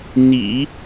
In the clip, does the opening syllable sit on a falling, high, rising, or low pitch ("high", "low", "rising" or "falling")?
low